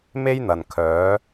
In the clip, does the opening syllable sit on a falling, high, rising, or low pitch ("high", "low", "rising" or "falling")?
high